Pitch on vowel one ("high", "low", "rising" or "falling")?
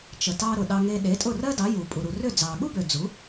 low